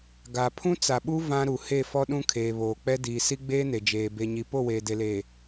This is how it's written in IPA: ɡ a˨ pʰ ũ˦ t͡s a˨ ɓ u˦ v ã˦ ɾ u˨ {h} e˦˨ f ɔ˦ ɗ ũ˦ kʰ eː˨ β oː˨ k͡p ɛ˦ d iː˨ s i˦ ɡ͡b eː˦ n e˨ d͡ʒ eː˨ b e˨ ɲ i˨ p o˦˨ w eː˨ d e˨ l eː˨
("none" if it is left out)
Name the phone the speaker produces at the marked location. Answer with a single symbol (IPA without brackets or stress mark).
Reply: h